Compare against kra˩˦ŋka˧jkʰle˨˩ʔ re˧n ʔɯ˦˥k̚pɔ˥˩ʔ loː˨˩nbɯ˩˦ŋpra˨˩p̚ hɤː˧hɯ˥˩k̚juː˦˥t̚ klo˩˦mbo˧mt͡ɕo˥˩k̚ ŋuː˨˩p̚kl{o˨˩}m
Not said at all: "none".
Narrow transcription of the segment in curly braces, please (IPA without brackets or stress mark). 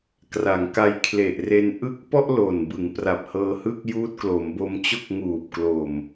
oː˨˩